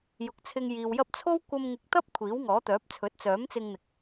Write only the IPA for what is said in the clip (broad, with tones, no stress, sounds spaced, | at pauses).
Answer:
j ʊ˨˥ k̚ t͡sʰ ɪ˧ ŋ j iː˨ w j ɐ˥ p̚ t͡sʰ o˥ w kʷ ɐ˧ m ŋ ɪ˨˥ k̚ t̪ ɐ˥ p̚ kʷʰ iː˨˥ w ŋ ɔː˨˥ t̪ œː˨˥ p̚ t͡sʰ ɵ˨˥ t̚ t͡s œː˨˥ m t͡s ɪ˧ ŋ n̪ ɪ˨ k̚